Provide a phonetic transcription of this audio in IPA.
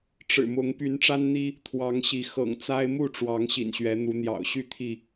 ʈ͡ʂ ɻ̩˨˩ m ʊ˨˦ ŋ p y˨˦ n ʈ͡ʂ a˦ n n̪ i˦ | t̪ʰ w ɑ˨˦ ŋ ɕ i˨˦ x ɤ̰˨˩ ŋ t͡s a˦ ɪ̯ m u˥˨ ʈ͡ʂ w ɑ˨˦ ŋ ɕ ḭ˨˩ n ɕ ɥ ɛ˨˦ n̪ u˨˦ n̪ j ɑ̰˨˩ ʊ̯ ɕ y˥˨ t̪ʰ i˥˨

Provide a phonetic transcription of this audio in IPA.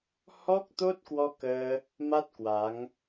h ɔ˦˥ k̚ t̪ o˦˥ t̚ k w ɔ˧ k əː˧ | m a˦˥ t̚ k w a˨˦ ŋ

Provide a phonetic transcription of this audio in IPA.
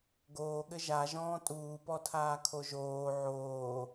ɡ oː ɠ ɘ ʒ a ʒ ɔ̃ː tʼ uː p ɔ tʰ aː kʰ o ʒ oː ʕ oː

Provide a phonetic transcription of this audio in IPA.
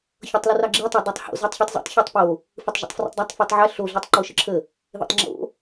ç ɤ tˤ l ə r ɑ ɡ͡ǁ e tˤ ə˞ dˤ ɤ tˤ h o̰ z ə˞ tˤ ç ɯ tˤ z ṵ tˤ ç ə˞ tˤ p o | f ɯ tˤ ʒ ḛ tˤ f r ṵ tˤ dˤ ɑ tˤ f ɯ tˤ ʕ ɛ ɬ o ɮ e tˤ ǃ o ʃ ə ǁʰ ə | ð ḛ tˤ ŋ͡ǁ o̰

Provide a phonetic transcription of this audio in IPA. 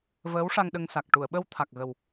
v əː˧˥ w ʂ a˧ ŋ ɗ ə˧ ŋ s a˨˩ k̚ ʈ u˨˩˨ ə̯ ɓ ə˧ w t̪ʰ a˨˩ k̚ ɣ ə˨˩ w

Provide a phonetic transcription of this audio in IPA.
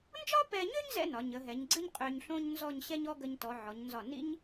n d͡ʒ ɒ˥ p ɛ˧ ɲ ø˥ ɲ z ɛ̰˥ n ɒ˩˧ ɲ ə˩˧ ɦ ɛ˩˧ ɲ ɡ͡ǀ ɨ˥ ɲ qʼ ø˧ ɲ ɬ õ˥ ɲ n z ɔ˥˧ ɲ ɕ ɛ˥ ɲ ɔ˥ ɡ ə˧ ɲ t ɔ˩˧ ʕ ɔ˩˧ ɲ n z ɒ˧˩ n ḭ˥ ɲ

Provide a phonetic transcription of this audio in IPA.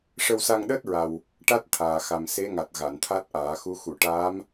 ʂ ə˧ w s a˧ ŋ ɗ əː˦˥ t̚ ɹ a˨˩ w | ʈ a˦˥ t̚ t̪ʰ aː˨˩ x a˨˩ m s e˧˥ ŋ a˨˩ t̚ ɣ a˨˩˨ n t̪ʰ a˦˥ t̚ ʔ aː˨˩˦ x u˧˥ x u˨˩˨ ʈ aː˧˥ m

